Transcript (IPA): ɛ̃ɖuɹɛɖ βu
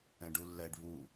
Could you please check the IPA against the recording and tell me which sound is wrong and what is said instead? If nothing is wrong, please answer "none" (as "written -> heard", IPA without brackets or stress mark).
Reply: ɹ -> lː